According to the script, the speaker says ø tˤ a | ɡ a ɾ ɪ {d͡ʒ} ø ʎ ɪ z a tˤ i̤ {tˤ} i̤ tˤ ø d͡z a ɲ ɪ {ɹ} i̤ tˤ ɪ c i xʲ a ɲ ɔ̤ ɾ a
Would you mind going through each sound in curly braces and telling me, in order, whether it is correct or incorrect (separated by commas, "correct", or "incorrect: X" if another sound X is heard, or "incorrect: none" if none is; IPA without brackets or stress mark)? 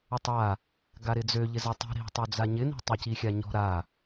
incorrect: d͡z, incorrect: ɾ, incorrect: n